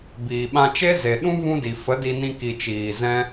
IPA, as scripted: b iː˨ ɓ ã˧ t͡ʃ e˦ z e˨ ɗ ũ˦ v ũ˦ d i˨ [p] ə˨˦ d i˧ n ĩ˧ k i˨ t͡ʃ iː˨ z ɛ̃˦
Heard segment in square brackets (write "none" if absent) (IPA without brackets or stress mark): f